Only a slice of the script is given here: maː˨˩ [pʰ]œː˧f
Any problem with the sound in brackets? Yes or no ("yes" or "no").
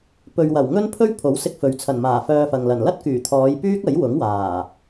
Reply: yes